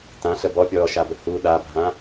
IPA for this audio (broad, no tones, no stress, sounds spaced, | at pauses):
t ã ɬ ə b ɔ pʲ ɔː ʃ a b ə h u ɗ a bʱ ã